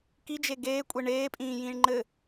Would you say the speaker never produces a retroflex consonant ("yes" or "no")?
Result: no